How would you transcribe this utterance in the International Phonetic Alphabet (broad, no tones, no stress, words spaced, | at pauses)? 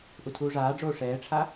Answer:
ʔutʰuːʐaːɖ͡ʐoː ʂɛːʈ͡ʂʰa